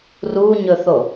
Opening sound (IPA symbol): r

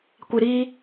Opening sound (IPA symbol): kʷ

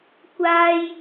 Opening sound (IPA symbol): kʷ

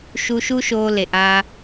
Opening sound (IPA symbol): ʃ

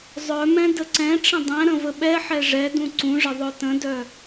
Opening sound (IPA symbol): zˤ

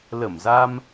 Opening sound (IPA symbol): l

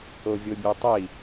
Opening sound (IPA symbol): o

